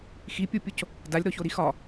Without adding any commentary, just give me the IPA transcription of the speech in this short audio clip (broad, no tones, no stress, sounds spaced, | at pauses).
x i pʲ o pʲ o c | d a lʲ ɾ ɔ ç o ɾ i x ɒ